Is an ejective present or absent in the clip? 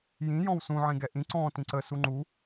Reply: absent